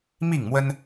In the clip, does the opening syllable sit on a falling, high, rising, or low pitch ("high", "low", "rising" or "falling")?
falling